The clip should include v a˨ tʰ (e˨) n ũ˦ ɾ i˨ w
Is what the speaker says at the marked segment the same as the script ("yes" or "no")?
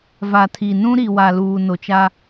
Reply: no